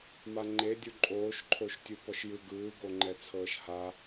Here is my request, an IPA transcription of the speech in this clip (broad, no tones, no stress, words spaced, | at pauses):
maŋ͡ǃedʲu ǃʼoːʃǃʰoʃtʲu pɔʃjɯ ɡɯːɡoŋ͡ǃɛ t͡sʰɤːʃha